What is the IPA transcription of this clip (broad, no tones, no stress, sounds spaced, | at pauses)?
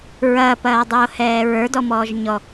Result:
ɹ ɐː p ɐː dˤ oː h ɛː ɹ ə˞ d ɔ m ɔː ʒ ɲ ɔ